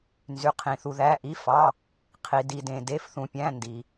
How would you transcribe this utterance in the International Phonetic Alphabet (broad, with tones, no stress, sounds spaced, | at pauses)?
n z y˩ qʰ ĩ˩ θ u˩ ð æ˩˧˩ ʔ i˩˧˩ f ɑ˩˧˩ | qʰ i˩ d i˩ d ẽ˩ d e˩˧˩ f θ ũ˩ pʲ æ̃˩˧˩ n d i˩